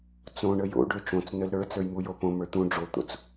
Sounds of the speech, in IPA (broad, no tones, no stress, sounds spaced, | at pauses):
t͡s õ ɳ ə j o̰ ɖ ø t͡ʃ õ t͡s n ə l ɾ ə˞ t͡s ə˞ j m u j o p õ m ə˞ t̪ ũ ɖ͡ʐ o t̪ o̰ t͡s